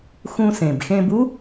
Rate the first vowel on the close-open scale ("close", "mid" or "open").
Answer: close